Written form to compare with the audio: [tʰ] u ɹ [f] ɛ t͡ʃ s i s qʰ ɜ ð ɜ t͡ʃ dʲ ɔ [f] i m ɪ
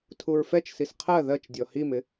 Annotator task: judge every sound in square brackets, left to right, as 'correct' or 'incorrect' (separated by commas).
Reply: correct, correct, incorrect